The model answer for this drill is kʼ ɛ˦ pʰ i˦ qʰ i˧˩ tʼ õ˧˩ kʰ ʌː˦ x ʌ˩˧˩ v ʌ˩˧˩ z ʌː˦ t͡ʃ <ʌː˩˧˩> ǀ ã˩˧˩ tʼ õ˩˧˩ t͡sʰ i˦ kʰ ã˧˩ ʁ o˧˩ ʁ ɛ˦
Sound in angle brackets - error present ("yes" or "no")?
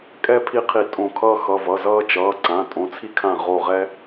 no